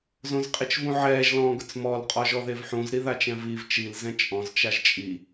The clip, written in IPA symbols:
zõzqʼit͡ʃvũʕɛːʒ lɔ̃ːɡʊt͡smɔl qʼɔʒɔðevħũz ɾiðat͡ʃɛ̃viv t͡ʃil zɛ̃t͡ʃʼɔ̃z t͡ʃaʒt͡ʃʼi

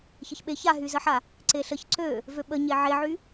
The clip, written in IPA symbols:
çəçɓe çaɦyzəħa | ǀeɬəç ǀø | vøɓə ɲeʕeʕy

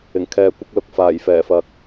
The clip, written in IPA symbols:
ɪ˨˩ŋkʰɛː˨kʷɪ˧k̚lʊ˨k̚ faː˨˩jfɛː˨˩fɐ˨k̚

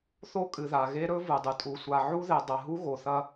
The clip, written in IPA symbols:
θo˦kʼɨ˨ða˨ ɣe˦ɾɵ˦ vɨ˨dˤɨ˨ tʼu˨sʷa˨ ʕu˦ðe˨dˤɐ˨ɦu˦ ɣo˨θɐ˦

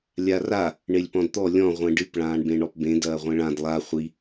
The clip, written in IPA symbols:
lʲara | ɳelʲpɔ̃dt̪ɔ lʲɔ̃ ʁʷẽɖɨp ɭãːɳbẽɳɔpbẽ dɐːʁʷẽɭãd lˠa χʷi

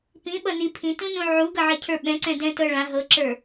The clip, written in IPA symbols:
pĩɓʌ ni pʰĩtũnũ ʕuɡʌʕʌcʰə˞ ɓɛ̃ǀɛ̃dɛ̃tɤ ɭã ɦɤǁə˞

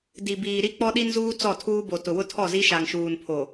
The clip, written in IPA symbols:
di˨ biː˨ɾi˦ k͡pɔ˦ɗi˦nzuː˦ t͡sɔ˦˨tʰuː˦bo˨ tʊ˨wʊ˦tʰɔ˦˨zi˦ ʃa˨ŋʃuː˨npʰo˨

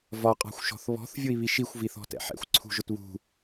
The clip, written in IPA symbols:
vɒqʼɑ̤xʷʃɔ̤θ βɔ̤θvʲʊi̯ βiʃixʷviθɔ̤ tɛ̰ħɛ̰xʷ ǀʰṳʒʊtβṳ

